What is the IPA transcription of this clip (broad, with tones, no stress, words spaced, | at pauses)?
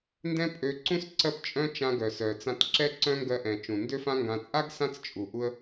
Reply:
ndɛ̃˥pʼø˧ǀũ˥s ǀɜ˧pt͡ʃʼœ̃˧ t͡ʃã˧ɡœ˩sœ˩t͡sã˧t ǁɛ˥ǀœ̃˥ŋɡɜ˧ʔɛ̃˩ t͡ʃũ˩ndø˥fã˥ŋɡã˧ t͡sʼa˥ɡ sã˥t͡st͡ʃʼu˩ ʔu˧ə̯